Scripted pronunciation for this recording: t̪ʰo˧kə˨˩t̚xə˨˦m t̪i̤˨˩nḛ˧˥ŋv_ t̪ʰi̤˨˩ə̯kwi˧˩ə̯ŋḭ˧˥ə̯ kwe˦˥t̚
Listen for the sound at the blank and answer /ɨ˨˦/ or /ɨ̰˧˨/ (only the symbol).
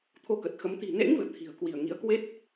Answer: ɨ̰˧˨